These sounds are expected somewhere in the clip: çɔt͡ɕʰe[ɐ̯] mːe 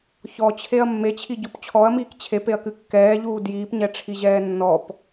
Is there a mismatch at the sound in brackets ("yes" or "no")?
no